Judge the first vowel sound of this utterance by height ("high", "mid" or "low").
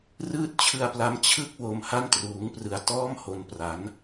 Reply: high